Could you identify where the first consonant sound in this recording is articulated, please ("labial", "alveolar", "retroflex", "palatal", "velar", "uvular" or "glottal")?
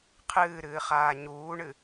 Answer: uvular